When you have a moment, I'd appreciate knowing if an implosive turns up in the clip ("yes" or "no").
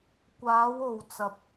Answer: no